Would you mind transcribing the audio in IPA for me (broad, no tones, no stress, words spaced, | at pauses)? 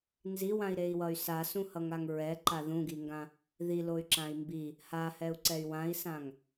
nziwãi̯ɾei̯wʌy̯ sasũhʌŋaŋ ɹɛǃa ðũɡiŋɡã | ðiloy̯ǁãi̯ mbi | hahɛu̯ǀɛy̯ wãi̯sãŋ